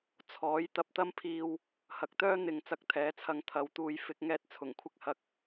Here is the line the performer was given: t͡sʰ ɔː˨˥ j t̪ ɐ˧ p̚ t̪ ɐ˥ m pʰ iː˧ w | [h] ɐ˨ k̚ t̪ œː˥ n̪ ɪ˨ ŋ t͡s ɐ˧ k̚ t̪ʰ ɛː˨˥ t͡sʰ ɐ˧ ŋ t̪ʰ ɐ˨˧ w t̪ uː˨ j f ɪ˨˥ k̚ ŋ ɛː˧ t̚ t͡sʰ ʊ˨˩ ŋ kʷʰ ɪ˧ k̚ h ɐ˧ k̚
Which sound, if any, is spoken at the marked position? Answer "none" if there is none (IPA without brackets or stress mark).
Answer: h